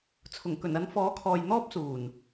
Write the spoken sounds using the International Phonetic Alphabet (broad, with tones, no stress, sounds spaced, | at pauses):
t͡sʰ ʊ˨˩ ŋ k ɵ˨˩ n ɐ˨˧ n f ɔː˨˥ kʰ ɔː˨ j n̪ ɔː˥ p̚ s uː˨˩ n